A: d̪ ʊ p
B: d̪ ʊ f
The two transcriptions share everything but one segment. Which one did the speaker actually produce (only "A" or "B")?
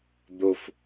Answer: B